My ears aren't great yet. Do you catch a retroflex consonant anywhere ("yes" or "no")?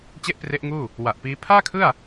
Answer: no